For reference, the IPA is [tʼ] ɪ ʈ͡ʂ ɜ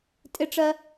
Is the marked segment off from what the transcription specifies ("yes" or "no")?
no